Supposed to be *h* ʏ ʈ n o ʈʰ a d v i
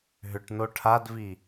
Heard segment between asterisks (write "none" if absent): ɦ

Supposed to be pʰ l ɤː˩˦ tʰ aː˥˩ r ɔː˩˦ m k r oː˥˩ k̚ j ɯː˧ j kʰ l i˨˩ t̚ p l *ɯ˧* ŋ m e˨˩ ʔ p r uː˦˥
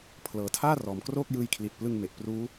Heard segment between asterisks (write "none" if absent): ɯ˧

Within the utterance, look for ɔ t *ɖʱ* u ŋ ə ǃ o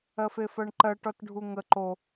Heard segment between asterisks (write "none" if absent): ɖʱ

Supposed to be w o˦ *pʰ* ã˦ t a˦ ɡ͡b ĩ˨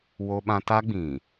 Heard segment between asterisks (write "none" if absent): ɓ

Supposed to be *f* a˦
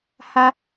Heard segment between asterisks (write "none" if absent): h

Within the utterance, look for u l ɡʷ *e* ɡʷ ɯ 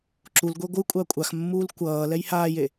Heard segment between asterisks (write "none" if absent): e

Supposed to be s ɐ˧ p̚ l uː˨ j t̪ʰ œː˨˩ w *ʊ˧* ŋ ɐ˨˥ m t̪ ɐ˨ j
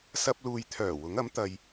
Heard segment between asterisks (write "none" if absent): ʊ˨˥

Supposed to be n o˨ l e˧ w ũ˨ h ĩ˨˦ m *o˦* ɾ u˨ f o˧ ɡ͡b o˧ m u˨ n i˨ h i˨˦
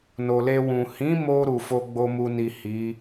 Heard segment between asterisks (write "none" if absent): o˧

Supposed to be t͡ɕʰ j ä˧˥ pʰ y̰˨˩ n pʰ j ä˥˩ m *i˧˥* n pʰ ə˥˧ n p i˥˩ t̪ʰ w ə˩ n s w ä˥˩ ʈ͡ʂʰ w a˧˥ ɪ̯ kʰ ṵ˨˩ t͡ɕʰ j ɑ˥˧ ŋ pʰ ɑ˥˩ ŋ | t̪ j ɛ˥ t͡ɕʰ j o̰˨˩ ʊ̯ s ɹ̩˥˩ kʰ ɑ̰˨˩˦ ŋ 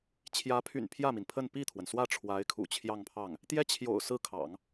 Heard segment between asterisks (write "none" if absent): i˩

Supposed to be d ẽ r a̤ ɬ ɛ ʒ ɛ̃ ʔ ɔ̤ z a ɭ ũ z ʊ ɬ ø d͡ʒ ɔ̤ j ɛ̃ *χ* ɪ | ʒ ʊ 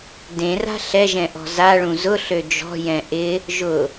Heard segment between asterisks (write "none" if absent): ʔ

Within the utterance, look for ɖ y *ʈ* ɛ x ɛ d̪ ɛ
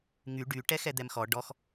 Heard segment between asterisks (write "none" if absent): ʈ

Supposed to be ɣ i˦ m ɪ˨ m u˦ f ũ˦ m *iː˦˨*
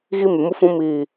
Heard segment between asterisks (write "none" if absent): iː˦˨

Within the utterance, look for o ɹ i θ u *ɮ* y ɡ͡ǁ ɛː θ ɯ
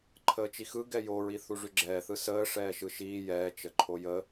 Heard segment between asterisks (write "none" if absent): ʐ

